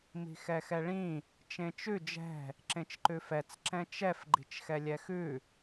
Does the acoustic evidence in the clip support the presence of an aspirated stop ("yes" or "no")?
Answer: no